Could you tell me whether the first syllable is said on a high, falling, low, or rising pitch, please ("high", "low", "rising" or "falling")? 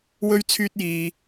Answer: high